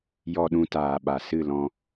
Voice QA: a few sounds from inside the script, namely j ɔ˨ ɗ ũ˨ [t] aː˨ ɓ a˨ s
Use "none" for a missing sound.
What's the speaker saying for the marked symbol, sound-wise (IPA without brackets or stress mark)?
t